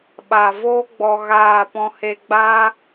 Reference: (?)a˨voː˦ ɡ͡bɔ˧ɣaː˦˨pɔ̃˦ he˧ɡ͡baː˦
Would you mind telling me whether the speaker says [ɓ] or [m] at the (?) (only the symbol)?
ɓ